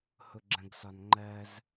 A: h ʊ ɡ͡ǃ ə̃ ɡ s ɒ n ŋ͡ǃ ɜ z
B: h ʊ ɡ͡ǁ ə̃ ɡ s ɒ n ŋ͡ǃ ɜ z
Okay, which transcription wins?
B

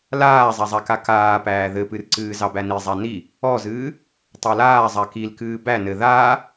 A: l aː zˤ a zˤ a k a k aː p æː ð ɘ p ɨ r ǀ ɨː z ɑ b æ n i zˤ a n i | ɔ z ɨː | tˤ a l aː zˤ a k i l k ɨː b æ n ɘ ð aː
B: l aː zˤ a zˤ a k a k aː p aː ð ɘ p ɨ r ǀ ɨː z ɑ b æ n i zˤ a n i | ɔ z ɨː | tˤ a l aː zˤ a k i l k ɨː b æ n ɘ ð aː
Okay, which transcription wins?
A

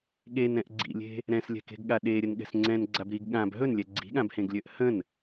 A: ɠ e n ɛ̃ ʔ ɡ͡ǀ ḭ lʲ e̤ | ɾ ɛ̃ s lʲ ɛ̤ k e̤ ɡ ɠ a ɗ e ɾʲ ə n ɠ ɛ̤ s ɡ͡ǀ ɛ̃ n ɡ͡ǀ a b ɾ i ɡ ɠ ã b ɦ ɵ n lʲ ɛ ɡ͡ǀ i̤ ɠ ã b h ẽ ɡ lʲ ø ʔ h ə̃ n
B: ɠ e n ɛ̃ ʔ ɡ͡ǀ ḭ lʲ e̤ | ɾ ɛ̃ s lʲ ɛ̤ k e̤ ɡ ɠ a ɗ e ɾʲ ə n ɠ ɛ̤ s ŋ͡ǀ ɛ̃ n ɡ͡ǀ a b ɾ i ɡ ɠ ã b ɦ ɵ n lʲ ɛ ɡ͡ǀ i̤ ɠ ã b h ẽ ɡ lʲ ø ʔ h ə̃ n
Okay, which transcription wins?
B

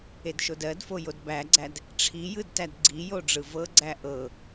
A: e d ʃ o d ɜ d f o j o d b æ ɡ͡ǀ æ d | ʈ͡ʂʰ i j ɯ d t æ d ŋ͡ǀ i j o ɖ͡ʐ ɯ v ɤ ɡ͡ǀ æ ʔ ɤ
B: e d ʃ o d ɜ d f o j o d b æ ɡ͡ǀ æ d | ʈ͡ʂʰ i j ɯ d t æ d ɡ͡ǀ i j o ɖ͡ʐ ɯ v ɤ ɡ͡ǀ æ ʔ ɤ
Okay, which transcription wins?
B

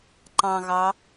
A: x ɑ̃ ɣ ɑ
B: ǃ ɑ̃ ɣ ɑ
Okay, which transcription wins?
B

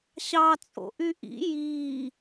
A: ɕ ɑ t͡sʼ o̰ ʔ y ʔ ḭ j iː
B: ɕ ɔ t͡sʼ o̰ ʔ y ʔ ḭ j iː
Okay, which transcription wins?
A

